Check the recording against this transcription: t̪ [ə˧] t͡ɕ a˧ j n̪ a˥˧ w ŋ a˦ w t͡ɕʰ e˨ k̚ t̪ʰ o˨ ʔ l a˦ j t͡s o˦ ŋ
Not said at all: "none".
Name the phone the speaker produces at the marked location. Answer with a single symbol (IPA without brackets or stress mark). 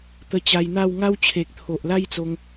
ə˧